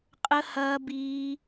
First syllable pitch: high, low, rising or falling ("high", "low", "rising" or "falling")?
high